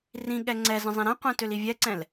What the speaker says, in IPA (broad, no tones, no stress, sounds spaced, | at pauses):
r ĩ ɠ ɛ ŋ͡ǀ ɛ z ə̃ zˤ ĩ ɾ ɛ̃ qʷ ɛ̃ t ø l i vʲ ɛ ǀ ɛ̃ l